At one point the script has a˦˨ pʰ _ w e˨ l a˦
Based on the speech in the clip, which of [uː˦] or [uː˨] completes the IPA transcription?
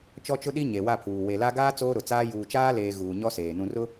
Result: uː˨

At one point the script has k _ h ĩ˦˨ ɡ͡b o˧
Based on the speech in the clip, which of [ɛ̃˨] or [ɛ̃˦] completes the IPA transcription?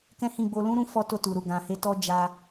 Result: ɛ̃˦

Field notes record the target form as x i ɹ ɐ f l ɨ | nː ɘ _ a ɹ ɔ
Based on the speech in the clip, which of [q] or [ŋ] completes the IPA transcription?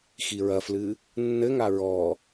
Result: ŋ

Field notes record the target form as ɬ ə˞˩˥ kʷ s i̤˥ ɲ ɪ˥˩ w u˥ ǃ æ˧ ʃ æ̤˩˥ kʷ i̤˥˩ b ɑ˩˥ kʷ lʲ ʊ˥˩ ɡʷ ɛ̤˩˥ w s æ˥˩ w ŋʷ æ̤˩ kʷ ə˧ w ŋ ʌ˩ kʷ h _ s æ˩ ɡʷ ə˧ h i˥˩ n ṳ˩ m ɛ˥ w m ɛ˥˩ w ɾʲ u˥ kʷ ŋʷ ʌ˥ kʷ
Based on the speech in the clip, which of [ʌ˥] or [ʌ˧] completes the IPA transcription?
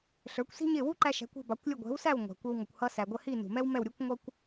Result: ʌ˧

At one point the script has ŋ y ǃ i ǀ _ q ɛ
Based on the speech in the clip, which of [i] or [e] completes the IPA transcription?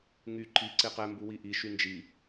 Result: e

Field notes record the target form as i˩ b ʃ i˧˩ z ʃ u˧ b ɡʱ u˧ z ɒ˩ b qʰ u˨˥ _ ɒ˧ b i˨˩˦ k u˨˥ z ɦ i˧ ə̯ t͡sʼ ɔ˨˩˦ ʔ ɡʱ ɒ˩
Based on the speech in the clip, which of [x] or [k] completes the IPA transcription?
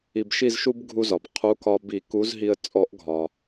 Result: k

